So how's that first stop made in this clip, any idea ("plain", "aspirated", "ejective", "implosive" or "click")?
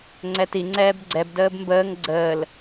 click